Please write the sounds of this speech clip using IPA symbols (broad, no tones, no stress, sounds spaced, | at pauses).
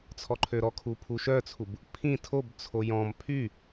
t͡sʰ ɔ ǃʰ ø ɾ ɔ kʰ u pʰ u ʃ œ t͡sʰ u b | pʰ ĩ tʰ o b t͡sʰ o j ɔ̃ m pʰ y